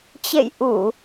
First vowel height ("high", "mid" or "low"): mid